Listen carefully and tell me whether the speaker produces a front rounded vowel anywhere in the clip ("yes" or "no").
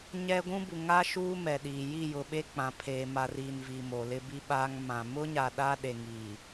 no